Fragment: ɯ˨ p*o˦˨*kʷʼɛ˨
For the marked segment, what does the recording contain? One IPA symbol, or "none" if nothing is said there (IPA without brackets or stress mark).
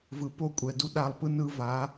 o˦˨